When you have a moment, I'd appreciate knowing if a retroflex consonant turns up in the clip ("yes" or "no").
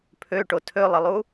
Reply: yes